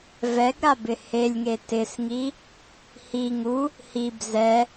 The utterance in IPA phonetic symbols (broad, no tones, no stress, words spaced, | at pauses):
vɛɡɾabɪ helʲŋe tɪsŋi | hi ŋu | hib zɛ